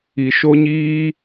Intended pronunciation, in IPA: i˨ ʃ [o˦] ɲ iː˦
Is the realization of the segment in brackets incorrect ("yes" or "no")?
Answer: no